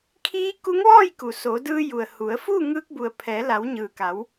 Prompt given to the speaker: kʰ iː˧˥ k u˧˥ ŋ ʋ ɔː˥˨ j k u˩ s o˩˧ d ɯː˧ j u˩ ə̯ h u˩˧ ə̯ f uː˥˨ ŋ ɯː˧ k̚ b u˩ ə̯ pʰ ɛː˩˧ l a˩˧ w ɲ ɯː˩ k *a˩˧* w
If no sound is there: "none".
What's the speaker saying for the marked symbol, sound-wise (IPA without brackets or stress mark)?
a˩˧